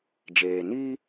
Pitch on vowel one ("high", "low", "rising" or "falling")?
low